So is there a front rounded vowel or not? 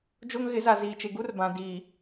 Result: no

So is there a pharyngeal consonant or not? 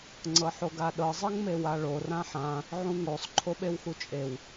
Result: yes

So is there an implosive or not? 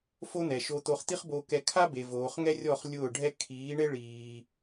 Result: no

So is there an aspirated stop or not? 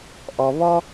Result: no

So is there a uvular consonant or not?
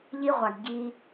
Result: yes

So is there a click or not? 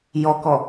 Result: no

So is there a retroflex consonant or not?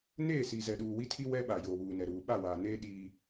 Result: no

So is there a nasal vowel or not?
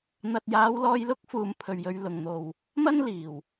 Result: no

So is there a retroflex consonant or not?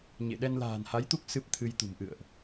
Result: no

